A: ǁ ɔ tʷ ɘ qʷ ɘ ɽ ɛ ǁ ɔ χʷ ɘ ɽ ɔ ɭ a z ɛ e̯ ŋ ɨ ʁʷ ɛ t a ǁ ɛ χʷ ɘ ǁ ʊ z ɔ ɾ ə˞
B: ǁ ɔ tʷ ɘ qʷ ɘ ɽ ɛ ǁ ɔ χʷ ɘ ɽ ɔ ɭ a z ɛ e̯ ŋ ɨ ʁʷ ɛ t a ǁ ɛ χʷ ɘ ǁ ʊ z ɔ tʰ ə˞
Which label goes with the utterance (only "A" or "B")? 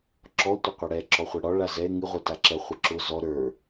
A